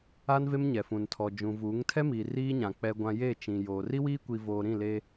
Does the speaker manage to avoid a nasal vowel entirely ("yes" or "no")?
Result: no